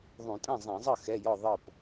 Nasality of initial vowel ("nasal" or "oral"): nasal